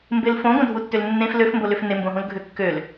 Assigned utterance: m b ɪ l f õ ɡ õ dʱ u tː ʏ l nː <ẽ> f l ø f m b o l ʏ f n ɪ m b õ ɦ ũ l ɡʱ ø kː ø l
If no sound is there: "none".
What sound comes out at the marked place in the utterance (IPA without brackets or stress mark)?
ẽ